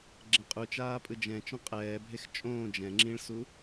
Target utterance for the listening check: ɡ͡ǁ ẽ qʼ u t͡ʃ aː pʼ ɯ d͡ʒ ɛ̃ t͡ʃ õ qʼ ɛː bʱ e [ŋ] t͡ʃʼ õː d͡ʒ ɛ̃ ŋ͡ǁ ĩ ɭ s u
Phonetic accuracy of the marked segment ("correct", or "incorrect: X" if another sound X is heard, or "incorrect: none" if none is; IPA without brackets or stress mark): incorrect: x